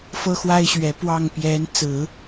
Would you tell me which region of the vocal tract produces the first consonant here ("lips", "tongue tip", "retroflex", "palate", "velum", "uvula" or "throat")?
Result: lips